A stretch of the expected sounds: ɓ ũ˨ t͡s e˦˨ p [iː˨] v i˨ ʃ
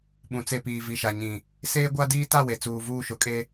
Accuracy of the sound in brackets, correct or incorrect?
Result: correct